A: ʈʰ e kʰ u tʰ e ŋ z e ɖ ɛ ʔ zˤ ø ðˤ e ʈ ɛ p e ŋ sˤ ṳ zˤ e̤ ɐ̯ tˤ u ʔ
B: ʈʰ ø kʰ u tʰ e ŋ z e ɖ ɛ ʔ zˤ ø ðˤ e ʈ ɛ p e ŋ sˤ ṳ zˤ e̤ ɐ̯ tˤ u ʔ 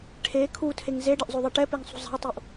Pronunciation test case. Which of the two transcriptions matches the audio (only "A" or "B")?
A